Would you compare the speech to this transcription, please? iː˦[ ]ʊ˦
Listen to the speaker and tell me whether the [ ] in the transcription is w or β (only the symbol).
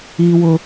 w